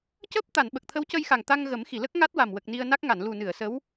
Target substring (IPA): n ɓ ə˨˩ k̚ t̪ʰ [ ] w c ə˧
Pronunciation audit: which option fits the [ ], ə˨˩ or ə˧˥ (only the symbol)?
ə˧˥